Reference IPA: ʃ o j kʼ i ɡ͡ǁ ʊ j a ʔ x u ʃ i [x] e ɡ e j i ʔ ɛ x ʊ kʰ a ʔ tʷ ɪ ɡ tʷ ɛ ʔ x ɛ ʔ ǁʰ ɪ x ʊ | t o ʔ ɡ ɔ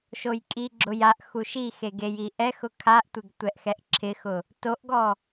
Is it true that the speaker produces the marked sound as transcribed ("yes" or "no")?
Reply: yes